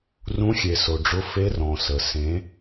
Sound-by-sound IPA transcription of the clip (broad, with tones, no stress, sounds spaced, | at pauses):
r ũ˧˥ xʲ e˨ s o˨ ɖ͡ʐ ʊ˧˥ f e˧˥ r ɔ̃˨ s ə˨ s ẽ˧˥